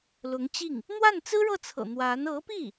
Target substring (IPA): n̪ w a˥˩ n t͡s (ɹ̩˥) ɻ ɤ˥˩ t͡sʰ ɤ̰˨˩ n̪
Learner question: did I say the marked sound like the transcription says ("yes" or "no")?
yes